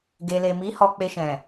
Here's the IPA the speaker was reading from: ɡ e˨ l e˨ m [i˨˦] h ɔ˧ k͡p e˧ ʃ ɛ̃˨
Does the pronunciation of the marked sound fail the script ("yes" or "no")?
no